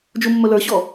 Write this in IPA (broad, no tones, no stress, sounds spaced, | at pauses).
d͡ʒ u mː ɵ l ə˞ ɕ ɔ